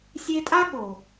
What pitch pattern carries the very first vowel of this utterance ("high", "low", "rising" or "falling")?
high